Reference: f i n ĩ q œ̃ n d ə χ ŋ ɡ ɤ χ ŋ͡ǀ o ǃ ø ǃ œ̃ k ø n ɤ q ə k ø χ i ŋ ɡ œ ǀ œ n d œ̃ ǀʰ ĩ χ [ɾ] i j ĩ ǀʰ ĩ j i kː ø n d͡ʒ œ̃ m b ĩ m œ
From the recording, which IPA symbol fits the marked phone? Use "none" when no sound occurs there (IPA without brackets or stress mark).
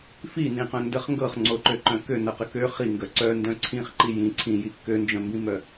ǃ